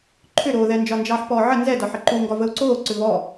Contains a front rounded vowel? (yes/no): yes